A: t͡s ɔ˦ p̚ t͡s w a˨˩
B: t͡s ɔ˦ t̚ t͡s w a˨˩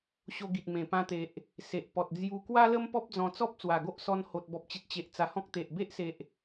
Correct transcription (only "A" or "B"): A